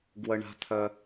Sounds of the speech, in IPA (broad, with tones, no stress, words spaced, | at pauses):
ɡwə˦ɳa̤˦t̪ʰœ˦